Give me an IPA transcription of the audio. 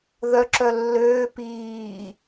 ð œ ǁ œ lː øː p iː

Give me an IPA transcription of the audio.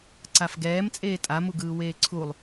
ǀ a f ɡ ɛː m t͡sʼ eː tʼ a m u ɡ ɯː w eː ǀʰ u lˠ

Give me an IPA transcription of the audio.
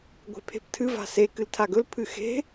ɡʷ e̤ pʰ e̤ p tʰ ɨ v a̤ s e k ɨ l tʰ a ɡ ɵ l pʰ ɨ x e̤

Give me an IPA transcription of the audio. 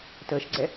t əː ʃ ɡ͡ǀ ɛ

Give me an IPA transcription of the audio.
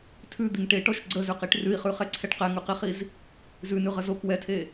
tʰ ʉ d̪ i ŋ ʈ e ʈ ɔ ʃ ɡ͡ǀ ə z ʉ q i ʈ r ʉ i̯ χ ʉ χ ɛ ǀʰ ɛ ʈ q ɛ ŋ ʉ q i χ i z | z ʉ n ʉ ʁ ə z o k w ɛ tʰ e

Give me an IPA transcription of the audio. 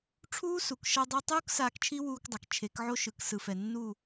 ʈ͡ʂʰ uː˦ s u˨ k ʃ ʌ˧ dˤ a˧ tˤ uː˦ k s aː˧ k t͡ʃʰ i˦ w uː˧ k dˤ a˨ k t͡ʃʰ e˨˦ k ʕ o˦ ʃ ɯ˨ k s ɯ˨ f ɛ˨ nː u˦˨

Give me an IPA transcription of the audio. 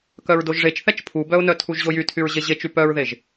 k œ ɹ d o ʒ ʐ e t͡ʃ θ ɛ t͡ʃ pʰ u b œ ʊ̯ n œ tʰ u ʒ ʑ o j y tʰ y ɹ ʑ e ʑ e t͡ʃ y p œ ɹ ð e ʒ

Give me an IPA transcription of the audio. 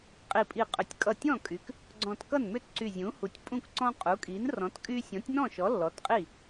qʼ i˧˩ pʼ i˧˩ qʼ ʏ˩˥ tʲ kʼ ʌ˧˩ tʲ ɔ̃˥˩ kʼ y˩˥ k | ɡ͡ǀ ɔ̃˧˩ t k ʌ˥˩ n m ʏ˥˩ t ǀ y˧˩ zʲ ũ˩˥ h u˩˥ tʲ pʼ ũ˥˩ k ǀ ɔ̃˦ qʼ u˩˥ kʼ i˩˥ n r ɔ̃˩˥ t kʼ y˦ sʲ ɔ̃˩˥ tʲ n ɔ̃˥˩ ʃ ɔ˩˥ lː ɔ˩˥ t qʼ i˥˩

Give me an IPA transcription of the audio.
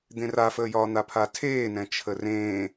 d̪ ẽ r a f əː j ɒː n̪ a pʰ a tʰ eː n ɛ̃ t͡ʃʰ ə r ẽː

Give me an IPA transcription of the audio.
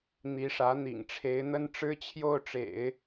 n̪ i˧˥ ʂ ä˧˥ n̪ ḭ˨˩ ŋ ʈ͡ʂʰ e˧˥ ɪ̯ n̪ ə˥ n ʈ͡ʂ ɻ̩˥ t͡ɕʰ j o˥˩ ʊ̯ ʈ͡ʂ ḛ˨˩˦ ɪ̯

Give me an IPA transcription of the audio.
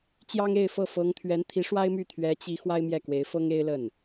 t͡ɕ j ɑ˥ ŋ e˥˧ ɪ̯ f ɤ˥˩ f ɤ˧˥ ŋ t̪ʰ ɥ ɛ˧˥ n t̪ʰ i˧˥ ʂ w a˥ ɪ̯ m y˥˩ t̪ʰ ɥ ɛ˧˥ t͡ɕ i˧˥ x w a˥ ɪ̯ m j ɛ˥˩ k w e˧˥ ɪ̯ f ɤ˥ ŋ e˥ ɪ̯ l ə˥˩ n

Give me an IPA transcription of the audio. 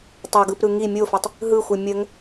tˤ o ɡ ɯ p ɾ ɯ ŋ i mʲ o f ɛ tˤ | ɦ ɯ xʷ ɯ mʲ ə ŋ

